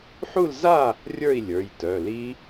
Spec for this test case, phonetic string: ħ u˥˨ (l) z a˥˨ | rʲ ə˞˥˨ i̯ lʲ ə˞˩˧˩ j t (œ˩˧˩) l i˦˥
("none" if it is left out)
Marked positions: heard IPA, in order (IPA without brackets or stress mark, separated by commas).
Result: l, œ˩˧˩